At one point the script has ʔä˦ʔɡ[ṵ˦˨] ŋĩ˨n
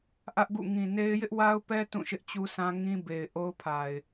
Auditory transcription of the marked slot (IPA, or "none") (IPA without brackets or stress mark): ṵ˦˨